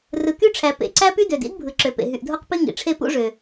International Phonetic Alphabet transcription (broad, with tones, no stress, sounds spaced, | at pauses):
r ɯ˩ k y˥ ʈ͡ʂʰ æ˩ p ḛ˩ ǀ æ˥ p y˥ d ø˩ d ḭ˥ d bʱ ɯ˩ ǁ ø˩ p ḛ˩ ɦ y˩ ʔ dʱ o˥ q p i˥ ŋ ḭ˩ ʈ͡ʂʰ e˥ p ṵ˥ ʐ ø˩